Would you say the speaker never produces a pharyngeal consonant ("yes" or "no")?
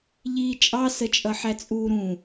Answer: no